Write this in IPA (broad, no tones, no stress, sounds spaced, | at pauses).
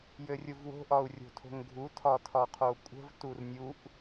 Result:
j ɘ rʲ u v w o̤ ʔ ɒ u̯ rʲ o̤ tʰ o̤ ŋ ɡʱ u tʰ ɒ tʰ ɒ qʰ o kʷʼ ə̤ v t u r nʲ u ʔ